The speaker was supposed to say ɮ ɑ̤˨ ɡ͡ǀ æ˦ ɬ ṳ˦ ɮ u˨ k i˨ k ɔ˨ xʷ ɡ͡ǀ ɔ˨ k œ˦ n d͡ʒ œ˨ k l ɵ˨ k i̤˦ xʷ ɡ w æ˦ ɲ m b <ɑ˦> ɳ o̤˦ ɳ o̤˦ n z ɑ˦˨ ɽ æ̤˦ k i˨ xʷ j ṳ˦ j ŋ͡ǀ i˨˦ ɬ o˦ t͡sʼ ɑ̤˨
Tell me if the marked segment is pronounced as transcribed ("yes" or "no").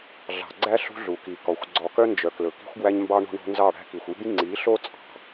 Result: yes